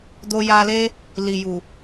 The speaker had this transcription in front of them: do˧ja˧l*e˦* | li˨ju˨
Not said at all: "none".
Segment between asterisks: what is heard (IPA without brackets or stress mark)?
e˦